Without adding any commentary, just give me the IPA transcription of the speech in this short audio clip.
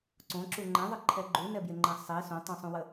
ǀõǁu ŋ͡ǃɛ̃ðˤəǃʰɛ ɡ͡ǃunɛbjeŋ͡ǃɛ̃ sˤi sõtˤũsˤũwə

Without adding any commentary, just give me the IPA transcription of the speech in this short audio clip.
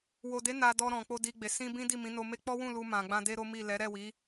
wo˨de˨˦ na˧ dɔ˧ɾɔ̃˨k͡po˧ di˧ɡ͡be˨ sĩ˧ bĩ˦di˦˨ mĩ˨˦no˧me˦ k͡pɔ˦wũ˦˨ lu˧mã˨ɡ͡bã˧ de˦ɾo˦mi˦˨ lɛ˨˦ɾɛ˦˨wi˨˦

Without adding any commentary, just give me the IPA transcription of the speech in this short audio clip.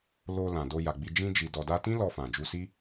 lo˧ lã˨do˧ ja˨ɡ͡bi˧ d͡ʒĩ˧d͡ʒi˨ dɔ˨da˧tĩ˦ lɔ˧fã˨d͡ʒu˧si˦

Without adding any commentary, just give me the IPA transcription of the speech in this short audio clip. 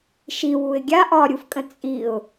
ʃi wuɪ̯ɡʲa ʔɒɾʲufkʼə̃ t͡sʼiʊ̯

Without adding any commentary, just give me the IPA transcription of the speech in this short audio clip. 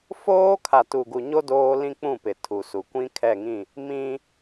foː˦kʰa˨tu˨ ɡu˨ɲo˦ doː˦lĩ˦k͡pũ˦˨pɪ˨ tʰu˨su˨˦ kʷĩ˦kʰɛ˦˨ŋĩ˦˨ | mĩ˦

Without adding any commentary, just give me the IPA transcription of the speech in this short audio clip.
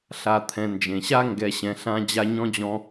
ɬa˨t̪ʰɛ̃˨ nd͡ʒẽ˩ɕa˥ ŋɡɛ˨ ɕɛ̃˨ɬã˦ d͡ʑa˦ɲɔ̃˥d͡ʑɔ̃˦

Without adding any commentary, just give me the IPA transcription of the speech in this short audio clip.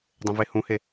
dˤẽvehũhe

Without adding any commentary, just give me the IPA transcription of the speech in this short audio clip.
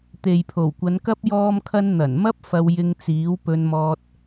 t̪e˨jpʰo˨˩wkʷɐ˨˧nkɐ˥p̚ jɔː˧mkʰɐ˧n n̪ɐ˨˩nmɐ˥p̚ fɐ˧w jɪ˧ŋt͡siː˨˥w pɵ˧nmɔː˧t̚

